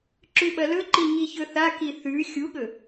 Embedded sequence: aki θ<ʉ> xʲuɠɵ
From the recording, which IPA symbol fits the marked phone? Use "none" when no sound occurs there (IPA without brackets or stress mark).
ʉ